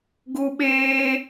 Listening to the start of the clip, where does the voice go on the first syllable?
high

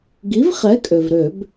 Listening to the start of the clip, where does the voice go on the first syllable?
rising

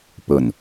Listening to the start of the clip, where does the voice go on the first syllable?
low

